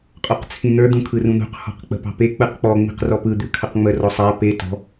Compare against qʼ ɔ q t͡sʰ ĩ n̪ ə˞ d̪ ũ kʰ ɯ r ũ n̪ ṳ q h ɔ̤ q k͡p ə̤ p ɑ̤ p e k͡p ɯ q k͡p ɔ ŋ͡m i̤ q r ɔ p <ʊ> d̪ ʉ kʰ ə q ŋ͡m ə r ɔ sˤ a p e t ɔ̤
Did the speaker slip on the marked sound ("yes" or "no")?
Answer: yes